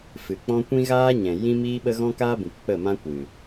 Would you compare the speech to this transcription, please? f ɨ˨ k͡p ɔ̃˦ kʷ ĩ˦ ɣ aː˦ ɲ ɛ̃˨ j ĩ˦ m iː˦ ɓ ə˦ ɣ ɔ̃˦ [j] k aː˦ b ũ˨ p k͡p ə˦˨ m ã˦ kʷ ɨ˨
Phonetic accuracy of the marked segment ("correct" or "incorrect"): incorrect